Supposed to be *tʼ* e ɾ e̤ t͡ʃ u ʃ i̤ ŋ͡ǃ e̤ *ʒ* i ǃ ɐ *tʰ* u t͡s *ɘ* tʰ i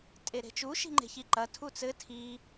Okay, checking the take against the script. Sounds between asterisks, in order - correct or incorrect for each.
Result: correct, incorrect: ç, correct, correct

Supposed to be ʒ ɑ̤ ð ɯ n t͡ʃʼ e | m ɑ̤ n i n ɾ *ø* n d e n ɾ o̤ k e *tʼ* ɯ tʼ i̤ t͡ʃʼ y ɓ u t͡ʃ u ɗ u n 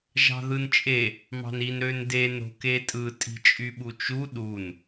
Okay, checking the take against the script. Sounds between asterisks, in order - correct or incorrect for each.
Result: correct, correct

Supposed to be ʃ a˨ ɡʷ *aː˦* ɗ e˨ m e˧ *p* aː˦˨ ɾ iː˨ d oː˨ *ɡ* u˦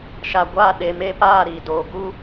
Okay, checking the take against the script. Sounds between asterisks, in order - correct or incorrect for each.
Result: incorrect: aː˦˨, correct, correct

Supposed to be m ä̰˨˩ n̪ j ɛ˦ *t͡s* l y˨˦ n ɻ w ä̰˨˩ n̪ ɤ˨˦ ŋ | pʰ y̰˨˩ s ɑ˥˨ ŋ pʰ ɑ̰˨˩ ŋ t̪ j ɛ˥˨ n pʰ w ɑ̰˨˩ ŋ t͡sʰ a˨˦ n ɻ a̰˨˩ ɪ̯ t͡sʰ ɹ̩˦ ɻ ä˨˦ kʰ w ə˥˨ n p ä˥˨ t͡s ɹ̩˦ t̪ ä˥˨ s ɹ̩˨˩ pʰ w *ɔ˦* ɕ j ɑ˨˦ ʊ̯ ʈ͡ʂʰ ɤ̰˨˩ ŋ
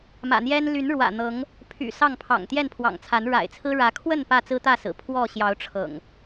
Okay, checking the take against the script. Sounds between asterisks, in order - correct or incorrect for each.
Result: incorrect: n, incorrect: ɔ˥˨

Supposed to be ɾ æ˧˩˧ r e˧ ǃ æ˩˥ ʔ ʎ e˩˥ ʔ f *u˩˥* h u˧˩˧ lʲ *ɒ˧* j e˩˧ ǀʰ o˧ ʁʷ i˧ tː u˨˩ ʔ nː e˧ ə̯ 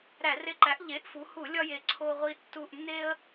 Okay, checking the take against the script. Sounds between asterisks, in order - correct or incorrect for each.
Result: incorrect: u˩˧, correct

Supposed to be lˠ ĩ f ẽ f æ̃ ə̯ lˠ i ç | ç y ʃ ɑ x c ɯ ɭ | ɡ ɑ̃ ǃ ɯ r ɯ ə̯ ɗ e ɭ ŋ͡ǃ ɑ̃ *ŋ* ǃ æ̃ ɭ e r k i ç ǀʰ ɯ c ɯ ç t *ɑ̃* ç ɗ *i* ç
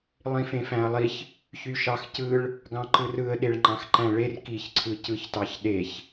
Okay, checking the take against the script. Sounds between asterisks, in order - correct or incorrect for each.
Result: incorrect: x, incorrect: ɑ, incorrect: e

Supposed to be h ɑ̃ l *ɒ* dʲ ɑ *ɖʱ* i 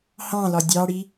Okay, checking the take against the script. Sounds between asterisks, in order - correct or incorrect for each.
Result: correct, incorrect: ɽ

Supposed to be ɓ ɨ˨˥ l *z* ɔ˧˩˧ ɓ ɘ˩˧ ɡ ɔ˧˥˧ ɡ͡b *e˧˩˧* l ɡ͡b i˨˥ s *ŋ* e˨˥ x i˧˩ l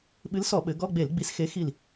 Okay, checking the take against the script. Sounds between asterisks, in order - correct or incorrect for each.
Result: incorrect: s, correct, incorrect: x

